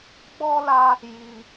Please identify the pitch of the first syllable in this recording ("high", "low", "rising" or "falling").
high